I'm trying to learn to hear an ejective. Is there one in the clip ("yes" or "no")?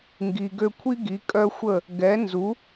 yes